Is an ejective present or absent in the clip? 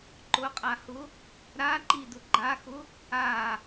present